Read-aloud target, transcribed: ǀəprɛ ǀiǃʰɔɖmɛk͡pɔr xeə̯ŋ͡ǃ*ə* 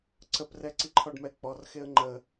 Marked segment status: correct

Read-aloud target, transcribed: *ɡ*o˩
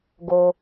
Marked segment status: correct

